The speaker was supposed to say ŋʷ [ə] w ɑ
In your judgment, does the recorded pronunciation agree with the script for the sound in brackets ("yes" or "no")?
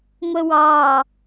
yes